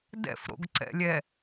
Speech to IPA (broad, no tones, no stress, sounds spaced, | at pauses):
d ɛ̰ f ɾ o̰ ɡ ǀ ɛ̰ lʲ ɛ